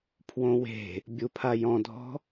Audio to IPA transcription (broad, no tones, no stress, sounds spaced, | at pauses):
pʰ w õ w e̤ | bʲ u pʰ a j ɔ̃ dʱ ɔ̤